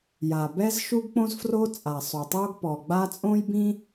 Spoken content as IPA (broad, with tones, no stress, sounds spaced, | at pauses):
j a˨˩ b ɛ˥ z ʃ u˥ ɡ k͡p õ˥ z f r o˥ t͡sʼ a˨˩ sˤ o˨˩ tˤ o˥ ɡ p ɔ˨˩ ɡ͡b a˥ t͡sʼ õ˥ j b ĩ˥